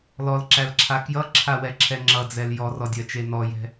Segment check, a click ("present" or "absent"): present